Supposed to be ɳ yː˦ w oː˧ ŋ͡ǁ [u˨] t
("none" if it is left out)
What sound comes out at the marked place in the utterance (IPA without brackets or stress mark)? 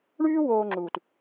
uː˨